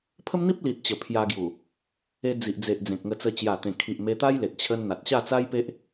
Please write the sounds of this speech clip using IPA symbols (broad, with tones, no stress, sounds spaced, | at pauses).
pʰ ə˦ m n̪ i˦ p̚ l i˨ t̚ t͡ɕ ə˨˩ pʰ j a˧ ɡ j u˨˩ | e˧ d͡z i˨ ʔ d͡z e˨ ʔ d͡z ẽ˨ k̚ ŋ ə˧ t͡s ə˧ t͡ɕ j a˨˩ t̪ ẽ˨˩ kʰ i˨ ʔ m e˧ t̪ a˦ j l e˨ t̚ t͡ɕʰ ə˧ n n̪ a˨ t̚ ɕ a˥˧ t͡s a˦ j p e˦ ʔ